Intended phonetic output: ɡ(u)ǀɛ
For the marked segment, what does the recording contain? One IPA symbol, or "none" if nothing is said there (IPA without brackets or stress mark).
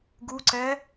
u